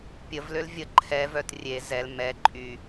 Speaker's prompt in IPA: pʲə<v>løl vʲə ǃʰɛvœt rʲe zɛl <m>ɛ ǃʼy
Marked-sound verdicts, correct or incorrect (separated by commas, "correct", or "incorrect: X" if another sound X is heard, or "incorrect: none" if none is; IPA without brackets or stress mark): correct, correct